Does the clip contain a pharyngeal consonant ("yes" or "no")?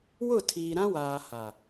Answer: no